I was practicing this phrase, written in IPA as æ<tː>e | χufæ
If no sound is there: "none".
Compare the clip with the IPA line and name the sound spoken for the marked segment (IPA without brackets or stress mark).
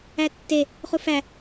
tː